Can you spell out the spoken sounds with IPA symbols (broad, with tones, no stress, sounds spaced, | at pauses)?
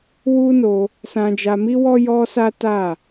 w u˦ n o˧ | s ã˧ d͡ʒ a˧ m i˦ w ɔ˦ j ɔ˦ s a˦ t a˦˨